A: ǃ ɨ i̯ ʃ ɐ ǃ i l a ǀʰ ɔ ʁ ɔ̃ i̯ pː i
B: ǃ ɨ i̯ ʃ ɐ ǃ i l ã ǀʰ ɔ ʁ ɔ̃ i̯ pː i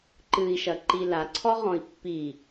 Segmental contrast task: A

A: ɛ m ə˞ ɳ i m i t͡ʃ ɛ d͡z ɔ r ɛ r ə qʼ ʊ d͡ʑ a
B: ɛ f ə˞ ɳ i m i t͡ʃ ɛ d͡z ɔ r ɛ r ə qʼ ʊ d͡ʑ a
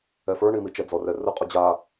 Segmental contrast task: B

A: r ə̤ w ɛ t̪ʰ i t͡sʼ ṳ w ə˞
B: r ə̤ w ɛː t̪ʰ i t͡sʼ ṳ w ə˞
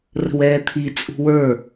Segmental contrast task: B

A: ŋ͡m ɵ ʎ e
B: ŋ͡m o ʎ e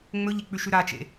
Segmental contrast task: A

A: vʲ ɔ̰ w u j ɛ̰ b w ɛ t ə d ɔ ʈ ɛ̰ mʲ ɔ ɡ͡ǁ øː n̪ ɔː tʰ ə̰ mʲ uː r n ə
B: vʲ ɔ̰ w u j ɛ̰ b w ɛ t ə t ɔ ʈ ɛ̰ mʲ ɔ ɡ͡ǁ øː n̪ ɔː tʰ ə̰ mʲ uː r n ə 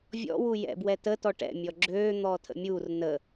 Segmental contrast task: B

